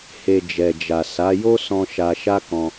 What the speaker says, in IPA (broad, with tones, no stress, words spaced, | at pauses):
he˧d͡ʒɛ˨d͡ʒa˨ sa˨˦ jo˦sɔ̃˧ ʃa˧ʃa˦ kɔ̃˧